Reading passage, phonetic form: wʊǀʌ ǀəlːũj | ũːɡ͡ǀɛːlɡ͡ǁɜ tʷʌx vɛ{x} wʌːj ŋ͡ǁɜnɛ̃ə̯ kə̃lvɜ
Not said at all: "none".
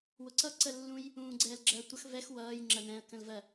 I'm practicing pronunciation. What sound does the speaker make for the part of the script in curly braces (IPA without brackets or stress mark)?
x